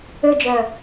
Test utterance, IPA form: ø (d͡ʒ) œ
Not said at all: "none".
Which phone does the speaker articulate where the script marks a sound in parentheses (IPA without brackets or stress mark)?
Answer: d͡ʒ